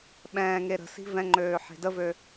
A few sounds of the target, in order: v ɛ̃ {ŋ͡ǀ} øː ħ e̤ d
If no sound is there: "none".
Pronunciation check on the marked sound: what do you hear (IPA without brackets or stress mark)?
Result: ŋ͡ǃ